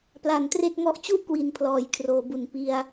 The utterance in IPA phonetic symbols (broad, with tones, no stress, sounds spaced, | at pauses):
p l a˨˩ n t r e˥˩ k̚ ŋ ɔ˦˥ ʔ t͡ɕ u˥˩ ʔ k w i˩˦ n pʰ l ɔː˨˩ j kʰ r oː˩˦ b u˨˩ n p i˧ a̯